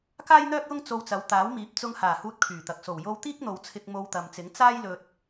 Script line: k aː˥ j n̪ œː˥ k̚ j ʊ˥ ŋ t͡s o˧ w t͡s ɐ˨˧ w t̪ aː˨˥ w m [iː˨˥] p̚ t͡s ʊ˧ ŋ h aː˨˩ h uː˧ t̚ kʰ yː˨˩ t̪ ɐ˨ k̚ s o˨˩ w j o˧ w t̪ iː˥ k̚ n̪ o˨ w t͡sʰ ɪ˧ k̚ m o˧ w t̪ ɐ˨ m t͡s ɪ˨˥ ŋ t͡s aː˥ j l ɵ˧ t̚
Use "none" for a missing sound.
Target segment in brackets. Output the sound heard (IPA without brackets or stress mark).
iː˨˥